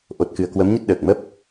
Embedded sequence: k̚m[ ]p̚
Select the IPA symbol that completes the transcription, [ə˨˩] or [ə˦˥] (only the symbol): ə˦˥